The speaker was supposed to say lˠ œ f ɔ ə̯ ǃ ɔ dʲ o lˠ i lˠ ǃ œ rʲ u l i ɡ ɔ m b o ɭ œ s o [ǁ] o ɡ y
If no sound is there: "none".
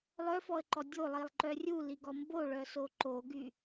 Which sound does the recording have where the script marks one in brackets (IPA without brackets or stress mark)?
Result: ǃ